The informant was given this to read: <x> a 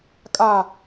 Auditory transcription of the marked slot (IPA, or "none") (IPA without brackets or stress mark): kʼ